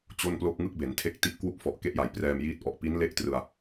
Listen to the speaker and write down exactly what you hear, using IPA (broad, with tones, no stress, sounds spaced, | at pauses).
t͡ɕ o˥˩ n p l o˥˩ k̚ ŋ ɯ˥˩ k̚ b e˩˦ n tʰ e˦˥ k̚ t i˦˥ ʔ k w u˥˩ k̚ f ɔ˨˩ ʔ k e˥˩ ʔ j a˨˩ j p r ɛː˧ m j iː˦˥ t̚ ʔ ɔ˨˩ ʔ p i˦˥ n l e˦˥ ʔ t r ɯ˧ a̯